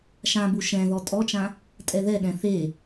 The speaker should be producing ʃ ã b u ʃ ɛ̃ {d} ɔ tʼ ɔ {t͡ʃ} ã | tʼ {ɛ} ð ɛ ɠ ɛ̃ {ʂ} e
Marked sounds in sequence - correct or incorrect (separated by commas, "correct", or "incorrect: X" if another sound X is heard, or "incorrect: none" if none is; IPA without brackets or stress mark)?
incorrect: ð, correct, correct, incorrect: θ